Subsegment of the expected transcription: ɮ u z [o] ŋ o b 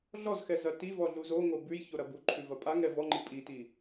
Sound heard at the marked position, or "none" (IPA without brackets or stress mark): o